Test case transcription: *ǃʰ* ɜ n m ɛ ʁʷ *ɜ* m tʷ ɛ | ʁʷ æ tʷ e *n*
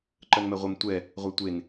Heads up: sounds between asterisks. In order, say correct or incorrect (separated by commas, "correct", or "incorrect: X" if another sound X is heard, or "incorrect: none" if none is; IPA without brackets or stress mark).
incorrect: ǃ, correct, correct